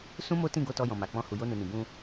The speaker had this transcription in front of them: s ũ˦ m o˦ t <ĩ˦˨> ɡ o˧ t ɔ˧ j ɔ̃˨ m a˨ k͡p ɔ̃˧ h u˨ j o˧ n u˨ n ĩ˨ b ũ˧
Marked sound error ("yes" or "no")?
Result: no